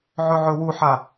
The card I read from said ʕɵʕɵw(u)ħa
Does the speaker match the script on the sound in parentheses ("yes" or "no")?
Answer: yes